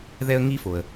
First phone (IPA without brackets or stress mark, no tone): ð